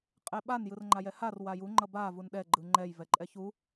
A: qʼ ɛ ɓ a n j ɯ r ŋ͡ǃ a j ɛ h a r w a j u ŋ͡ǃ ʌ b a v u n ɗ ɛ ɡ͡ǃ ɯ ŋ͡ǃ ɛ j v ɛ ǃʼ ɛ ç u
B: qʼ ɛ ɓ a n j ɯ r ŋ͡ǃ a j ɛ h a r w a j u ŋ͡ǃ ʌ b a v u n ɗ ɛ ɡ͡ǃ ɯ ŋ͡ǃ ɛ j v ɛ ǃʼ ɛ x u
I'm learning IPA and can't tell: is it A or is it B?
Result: A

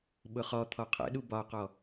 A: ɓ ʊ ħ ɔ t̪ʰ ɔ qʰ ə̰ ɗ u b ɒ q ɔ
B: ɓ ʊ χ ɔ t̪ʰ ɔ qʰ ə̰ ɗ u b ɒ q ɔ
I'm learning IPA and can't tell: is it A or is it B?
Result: B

